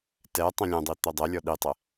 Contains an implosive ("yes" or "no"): yes